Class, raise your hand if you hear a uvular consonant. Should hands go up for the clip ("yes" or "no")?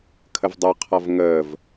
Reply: yes